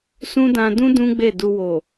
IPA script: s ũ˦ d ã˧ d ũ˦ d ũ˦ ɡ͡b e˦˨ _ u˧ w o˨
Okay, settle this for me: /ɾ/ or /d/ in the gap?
d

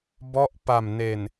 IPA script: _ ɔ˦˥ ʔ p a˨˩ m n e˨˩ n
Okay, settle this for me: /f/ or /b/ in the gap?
b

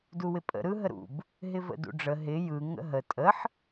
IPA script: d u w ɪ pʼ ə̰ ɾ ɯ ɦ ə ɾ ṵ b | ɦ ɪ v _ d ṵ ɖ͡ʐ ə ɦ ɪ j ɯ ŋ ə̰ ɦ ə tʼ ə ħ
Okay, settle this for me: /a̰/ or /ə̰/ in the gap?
ə̰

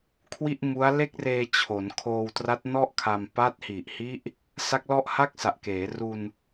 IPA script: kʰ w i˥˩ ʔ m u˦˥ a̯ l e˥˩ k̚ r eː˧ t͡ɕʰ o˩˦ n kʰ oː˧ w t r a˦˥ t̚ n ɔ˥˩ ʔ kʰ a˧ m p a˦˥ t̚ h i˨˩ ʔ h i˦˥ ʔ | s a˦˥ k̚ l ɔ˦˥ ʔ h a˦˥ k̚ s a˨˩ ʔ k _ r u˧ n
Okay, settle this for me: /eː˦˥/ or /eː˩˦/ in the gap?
eː˩˦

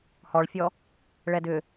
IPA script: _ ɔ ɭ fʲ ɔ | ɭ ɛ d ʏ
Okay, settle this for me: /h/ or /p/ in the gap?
h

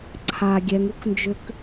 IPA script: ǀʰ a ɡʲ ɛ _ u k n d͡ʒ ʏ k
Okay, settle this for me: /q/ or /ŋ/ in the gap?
ŋ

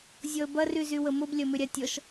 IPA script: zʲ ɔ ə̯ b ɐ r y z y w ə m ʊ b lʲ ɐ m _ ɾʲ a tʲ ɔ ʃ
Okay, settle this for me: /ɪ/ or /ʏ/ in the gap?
ʏ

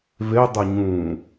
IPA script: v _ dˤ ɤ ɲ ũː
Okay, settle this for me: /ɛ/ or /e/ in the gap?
e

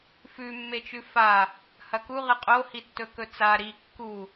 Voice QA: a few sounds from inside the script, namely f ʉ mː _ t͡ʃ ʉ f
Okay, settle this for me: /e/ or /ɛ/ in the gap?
e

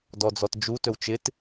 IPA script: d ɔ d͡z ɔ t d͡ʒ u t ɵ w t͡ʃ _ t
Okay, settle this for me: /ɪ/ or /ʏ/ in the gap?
ɪ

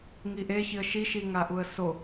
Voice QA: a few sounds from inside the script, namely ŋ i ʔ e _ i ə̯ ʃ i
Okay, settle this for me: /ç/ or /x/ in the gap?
ç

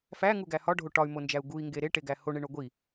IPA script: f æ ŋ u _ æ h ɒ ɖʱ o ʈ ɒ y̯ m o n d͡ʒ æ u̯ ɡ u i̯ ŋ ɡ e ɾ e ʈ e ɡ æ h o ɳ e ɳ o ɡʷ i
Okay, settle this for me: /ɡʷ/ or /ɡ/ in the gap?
ɡ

